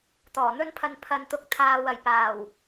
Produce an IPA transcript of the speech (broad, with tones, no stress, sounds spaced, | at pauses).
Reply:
t̪ ɔː˨˩ n̪ ɵ˥ n pʰ ɐ˧ n pʰ ɐ˨ n t̪ ʊ˧ k̚ t̪ʰ aː˧ w ɐ˨ j p aː˨˩ w